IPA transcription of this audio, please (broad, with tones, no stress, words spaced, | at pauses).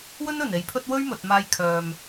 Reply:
wɵ˥nɵ˨˩ne˨˧j pʰɵ˥t̚ wɵ˥ɥmɵ˨t̚ maː˧jkʰœː˨m